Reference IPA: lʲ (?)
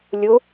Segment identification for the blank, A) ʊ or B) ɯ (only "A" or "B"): A